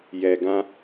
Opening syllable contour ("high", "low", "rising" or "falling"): low